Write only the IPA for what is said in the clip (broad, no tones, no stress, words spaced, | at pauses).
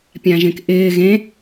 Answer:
pʲãʒẽkʔɪː ɣẽ